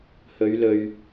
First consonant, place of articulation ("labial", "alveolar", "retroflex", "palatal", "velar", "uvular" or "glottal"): glottal